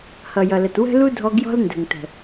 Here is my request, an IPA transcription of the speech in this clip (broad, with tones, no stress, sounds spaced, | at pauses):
h ʌ˨ j ʌ˨ l ə˨ t w ə̤˦ l u˦ dʱ ɔ˧ ɡ j ɔ̤˦ l n d ə̤˨ ŋ t ə̤˨